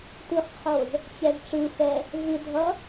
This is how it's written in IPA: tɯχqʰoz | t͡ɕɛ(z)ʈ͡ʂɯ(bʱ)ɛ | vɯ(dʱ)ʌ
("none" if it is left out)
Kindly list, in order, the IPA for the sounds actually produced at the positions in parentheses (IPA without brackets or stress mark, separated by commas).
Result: z, f, dʱ